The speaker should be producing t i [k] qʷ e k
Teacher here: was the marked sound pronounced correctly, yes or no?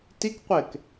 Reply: yes